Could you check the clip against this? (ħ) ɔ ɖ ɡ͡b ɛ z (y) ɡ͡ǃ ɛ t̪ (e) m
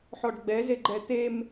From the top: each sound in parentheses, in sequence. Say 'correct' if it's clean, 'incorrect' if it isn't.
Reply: correct, incorrect, correct

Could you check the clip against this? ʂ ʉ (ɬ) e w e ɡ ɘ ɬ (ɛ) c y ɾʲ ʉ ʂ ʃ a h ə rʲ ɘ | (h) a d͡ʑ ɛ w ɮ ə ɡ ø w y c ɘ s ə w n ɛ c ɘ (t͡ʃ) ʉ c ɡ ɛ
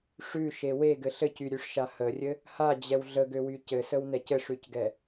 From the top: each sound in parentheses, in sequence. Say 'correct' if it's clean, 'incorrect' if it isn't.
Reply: incorrect, incorrect, correct, incorrect

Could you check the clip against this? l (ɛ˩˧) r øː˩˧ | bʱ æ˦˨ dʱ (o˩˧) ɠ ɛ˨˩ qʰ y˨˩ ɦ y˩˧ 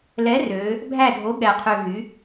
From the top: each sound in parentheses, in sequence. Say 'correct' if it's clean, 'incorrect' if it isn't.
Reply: incorrect, incorrect

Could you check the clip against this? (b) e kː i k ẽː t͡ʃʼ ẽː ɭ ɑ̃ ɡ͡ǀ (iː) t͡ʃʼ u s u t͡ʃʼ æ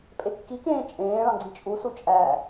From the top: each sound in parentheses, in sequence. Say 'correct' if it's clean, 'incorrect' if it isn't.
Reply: incorrect, incorrect

